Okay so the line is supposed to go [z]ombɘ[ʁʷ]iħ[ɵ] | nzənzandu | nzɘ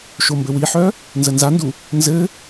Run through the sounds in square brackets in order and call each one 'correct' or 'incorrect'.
incorrect: ʃ, incorrect: w, incorrect: œ

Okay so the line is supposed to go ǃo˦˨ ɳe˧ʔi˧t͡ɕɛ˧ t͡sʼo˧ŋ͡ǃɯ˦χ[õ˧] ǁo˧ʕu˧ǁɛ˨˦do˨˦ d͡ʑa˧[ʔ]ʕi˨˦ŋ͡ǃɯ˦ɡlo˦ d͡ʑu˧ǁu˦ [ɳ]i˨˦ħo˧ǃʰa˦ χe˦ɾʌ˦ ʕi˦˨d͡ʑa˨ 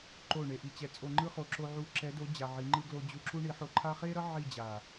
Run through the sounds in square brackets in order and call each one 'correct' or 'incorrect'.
incorrect: o˧, incorrect: none, correct

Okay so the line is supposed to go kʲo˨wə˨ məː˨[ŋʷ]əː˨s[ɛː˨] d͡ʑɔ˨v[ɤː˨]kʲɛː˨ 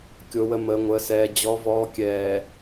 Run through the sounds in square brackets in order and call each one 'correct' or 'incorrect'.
correct, correct, incorrect: ɔː˨

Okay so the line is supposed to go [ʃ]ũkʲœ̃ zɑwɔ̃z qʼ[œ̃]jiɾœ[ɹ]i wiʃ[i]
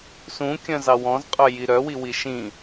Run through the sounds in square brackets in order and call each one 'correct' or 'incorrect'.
incorrect: s, incorrect: œ, incorrect: w, incorrect: ĩ

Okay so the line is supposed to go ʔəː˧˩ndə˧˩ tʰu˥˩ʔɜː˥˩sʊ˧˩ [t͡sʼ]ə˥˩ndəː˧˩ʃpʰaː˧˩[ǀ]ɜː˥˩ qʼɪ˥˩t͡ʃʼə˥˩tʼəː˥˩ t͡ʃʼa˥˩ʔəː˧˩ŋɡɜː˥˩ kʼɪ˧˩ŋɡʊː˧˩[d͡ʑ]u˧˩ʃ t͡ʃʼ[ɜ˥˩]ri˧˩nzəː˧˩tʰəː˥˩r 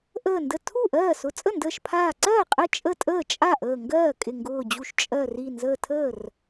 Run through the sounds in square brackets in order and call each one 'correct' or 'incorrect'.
correct, correct, correct, incorrect: ɜ˧˩

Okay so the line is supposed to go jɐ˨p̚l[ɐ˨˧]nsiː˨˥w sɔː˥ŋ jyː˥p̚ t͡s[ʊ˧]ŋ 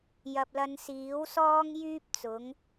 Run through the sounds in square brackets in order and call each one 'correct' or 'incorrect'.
correct, incorrect: ʊ˨˥

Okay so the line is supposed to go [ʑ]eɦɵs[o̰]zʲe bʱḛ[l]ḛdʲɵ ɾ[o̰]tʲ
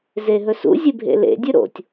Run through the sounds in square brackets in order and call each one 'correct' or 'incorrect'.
incorrect: z, incorrect: ṵ, correct, correct

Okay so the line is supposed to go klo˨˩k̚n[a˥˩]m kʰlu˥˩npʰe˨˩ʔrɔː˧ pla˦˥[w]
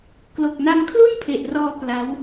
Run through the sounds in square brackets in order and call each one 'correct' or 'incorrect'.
incorrect: a˧, correct

